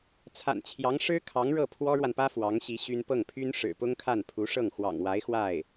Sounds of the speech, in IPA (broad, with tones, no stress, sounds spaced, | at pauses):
t͡sʰ a̰˨˩ n t͡ɕʰ j ɑ˧˥ ŋ ʂ ɻ̩˥ kʰ ɑ˧˥ ŋ ɻ ɤ˥˩ pʰ w ɔ˥ ɻ w a˨ n p ä˥ f w ɑ˧˥ ŋ ɕ i˧˥ ɕ y˥ n p ɤ˥˩ ŋ pʰ y˥ n ʂ ɻ̩˨˩ p ʊ˥ ŋ kʰ a˥˩ n pʰ u˧˥ ʂ ɤ˥˩ ŋ x w ɑ̰˨˩ ŋ w a˧˥ ɪ̯ x w a˥˩ ɪ̯